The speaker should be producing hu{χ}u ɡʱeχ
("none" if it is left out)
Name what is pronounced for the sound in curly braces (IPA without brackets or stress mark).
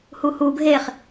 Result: h